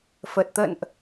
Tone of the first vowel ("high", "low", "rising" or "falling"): low